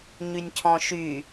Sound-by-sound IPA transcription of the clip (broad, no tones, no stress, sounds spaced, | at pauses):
ɲ y nʲ cʰ ɔ̃ ʃ y